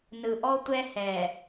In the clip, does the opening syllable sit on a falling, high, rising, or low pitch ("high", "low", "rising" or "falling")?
low